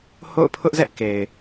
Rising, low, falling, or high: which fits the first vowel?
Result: falling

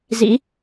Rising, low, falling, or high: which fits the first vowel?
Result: rising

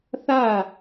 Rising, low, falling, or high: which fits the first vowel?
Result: falling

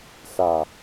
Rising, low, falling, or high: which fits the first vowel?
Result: low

